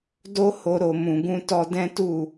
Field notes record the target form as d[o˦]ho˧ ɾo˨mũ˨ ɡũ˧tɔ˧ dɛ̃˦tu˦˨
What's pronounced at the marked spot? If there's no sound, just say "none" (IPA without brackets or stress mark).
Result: o˦